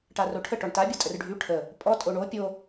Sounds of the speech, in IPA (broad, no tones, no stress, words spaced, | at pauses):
ʈaroʈʰə ʈɔɳta bʲɔtʼərɖʱy ʈʰə | pʼɔ tʼoɳo pʲo